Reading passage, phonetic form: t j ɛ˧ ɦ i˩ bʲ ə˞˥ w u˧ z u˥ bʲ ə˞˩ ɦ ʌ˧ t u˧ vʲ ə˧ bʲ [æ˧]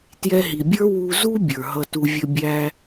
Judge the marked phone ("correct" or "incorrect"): correct